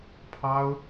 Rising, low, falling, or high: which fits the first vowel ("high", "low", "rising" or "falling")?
high